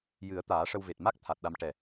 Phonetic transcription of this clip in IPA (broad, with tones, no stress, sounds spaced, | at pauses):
j ɨ˨˩˦ ə̯ t̪ aː˨˩˦ ʂ ə˧ w v e˨˩ t̚ m a˦˥ k̚ t̪ʰ a˨˩ t̚ ɗ a˧ m ʈ ɛ˨˩